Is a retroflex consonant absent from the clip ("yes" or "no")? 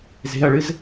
no